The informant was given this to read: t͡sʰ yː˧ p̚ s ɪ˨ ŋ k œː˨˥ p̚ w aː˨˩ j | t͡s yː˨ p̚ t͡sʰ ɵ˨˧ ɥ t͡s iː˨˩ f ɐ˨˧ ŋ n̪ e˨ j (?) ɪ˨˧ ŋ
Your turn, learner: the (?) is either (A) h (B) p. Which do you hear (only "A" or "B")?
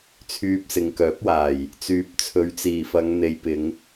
B